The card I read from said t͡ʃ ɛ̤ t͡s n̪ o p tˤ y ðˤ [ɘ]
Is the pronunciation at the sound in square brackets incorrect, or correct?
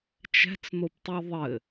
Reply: correct